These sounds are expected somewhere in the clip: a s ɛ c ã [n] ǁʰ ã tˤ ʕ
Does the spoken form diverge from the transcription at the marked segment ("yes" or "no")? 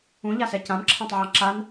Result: yes